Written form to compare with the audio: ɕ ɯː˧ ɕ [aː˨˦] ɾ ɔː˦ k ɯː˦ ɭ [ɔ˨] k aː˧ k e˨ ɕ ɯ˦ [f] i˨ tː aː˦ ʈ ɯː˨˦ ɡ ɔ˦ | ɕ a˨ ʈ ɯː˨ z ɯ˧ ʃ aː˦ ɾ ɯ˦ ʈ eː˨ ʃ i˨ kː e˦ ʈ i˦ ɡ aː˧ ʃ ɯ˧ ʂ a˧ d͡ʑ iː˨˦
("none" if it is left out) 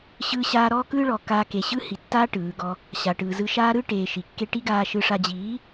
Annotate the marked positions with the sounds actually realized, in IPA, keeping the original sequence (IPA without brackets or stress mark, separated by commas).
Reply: aː˧, ɔ˨, h